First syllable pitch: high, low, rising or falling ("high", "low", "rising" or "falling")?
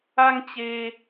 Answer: high